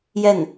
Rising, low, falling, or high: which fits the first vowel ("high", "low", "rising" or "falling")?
falling